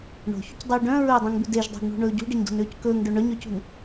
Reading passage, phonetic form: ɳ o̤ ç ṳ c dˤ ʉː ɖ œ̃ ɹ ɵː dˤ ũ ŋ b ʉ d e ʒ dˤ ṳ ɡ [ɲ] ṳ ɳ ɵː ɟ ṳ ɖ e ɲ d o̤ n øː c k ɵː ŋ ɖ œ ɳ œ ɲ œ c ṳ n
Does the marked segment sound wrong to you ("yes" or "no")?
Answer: yes